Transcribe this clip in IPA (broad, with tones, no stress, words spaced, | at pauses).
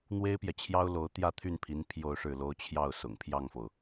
n̪we˥ɪ̯pjɛ˨t͡ɕʰjɑ˥ʊ̯lo˧˥ʊ̯ t̪jä˥˧t̪ʰy˥˩npʰi˧˥n pʰjo˥˧ʊ̯ʂɻ̩˥˩lo˥ʊ̯ t͡ɕʰjɑ˥˩ʊ̯sʊ̰˨˩ŋpʰjɑ˥˩ŋfo˩ʊ̯